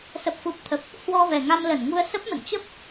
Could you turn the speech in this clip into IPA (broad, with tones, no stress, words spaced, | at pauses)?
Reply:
sə˨˩p̚fu˨˩p̚t̪ʰə˨˩p̚ | hwɔ˧vɛ˨˩ŋa˧m lə˧˩nŋu˧ə̯ sə˦˥p̚mə̰˧˨n t͡ɕə˦˥p̚